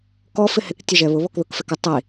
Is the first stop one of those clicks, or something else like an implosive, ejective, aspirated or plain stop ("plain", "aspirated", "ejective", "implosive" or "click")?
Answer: plain